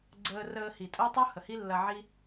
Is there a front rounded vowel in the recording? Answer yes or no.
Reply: no